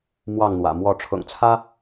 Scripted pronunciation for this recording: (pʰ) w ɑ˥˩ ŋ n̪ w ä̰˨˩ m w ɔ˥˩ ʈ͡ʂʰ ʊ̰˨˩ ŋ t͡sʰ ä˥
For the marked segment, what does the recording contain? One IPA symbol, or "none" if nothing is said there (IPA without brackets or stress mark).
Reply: m